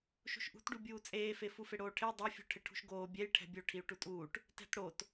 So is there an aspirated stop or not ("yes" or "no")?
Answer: yes